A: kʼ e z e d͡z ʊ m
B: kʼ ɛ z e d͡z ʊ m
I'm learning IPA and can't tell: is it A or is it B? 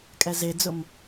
B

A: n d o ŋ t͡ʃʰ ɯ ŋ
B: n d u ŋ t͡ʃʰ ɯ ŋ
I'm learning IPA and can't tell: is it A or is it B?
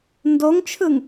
A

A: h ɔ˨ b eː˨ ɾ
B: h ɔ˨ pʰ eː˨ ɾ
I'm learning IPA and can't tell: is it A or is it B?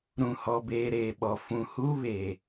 A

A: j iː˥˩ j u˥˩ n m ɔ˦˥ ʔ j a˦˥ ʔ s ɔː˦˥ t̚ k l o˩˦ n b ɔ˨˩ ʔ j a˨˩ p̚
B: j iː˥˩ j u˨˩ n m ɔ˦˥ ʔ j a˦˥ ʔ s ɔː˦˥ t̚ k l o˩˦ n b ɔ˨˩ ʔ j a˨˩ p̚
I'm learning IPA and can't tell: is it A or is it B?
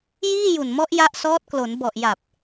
B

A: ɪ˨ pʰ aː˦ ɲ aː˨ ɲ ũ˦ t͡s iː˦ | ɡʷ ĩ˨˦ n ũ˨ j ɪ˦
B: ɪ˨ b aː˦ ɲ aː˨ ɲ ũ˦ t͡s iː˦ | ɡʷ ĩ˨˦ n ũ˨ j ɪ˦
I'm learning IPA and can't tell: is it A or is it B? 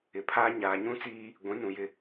A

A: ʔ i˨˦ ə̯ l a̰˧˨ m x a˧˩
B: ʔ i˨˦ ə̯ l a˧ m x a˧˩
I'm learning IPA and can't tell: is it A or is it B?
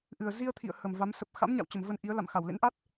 A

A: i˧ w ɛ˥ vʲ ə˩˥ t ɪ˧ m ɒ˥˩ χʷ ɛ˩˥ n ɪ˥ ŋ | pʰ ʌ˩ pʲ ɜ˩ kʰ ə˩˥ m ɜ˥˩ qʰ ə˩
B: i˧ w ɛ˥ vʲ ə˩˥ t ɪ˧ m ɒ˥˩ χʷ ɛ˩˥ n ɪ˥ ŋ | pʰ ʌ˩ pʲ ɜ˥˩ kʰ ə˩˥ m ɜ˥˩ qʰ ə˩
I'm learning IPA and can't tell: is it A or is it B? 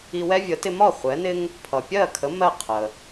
B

